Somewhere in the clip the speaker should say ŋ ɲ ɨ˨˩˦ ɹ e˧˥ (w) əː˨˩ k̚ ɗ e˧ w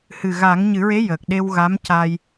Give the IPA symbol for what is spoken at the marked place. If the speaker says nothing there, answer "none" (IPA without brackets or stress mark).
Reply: j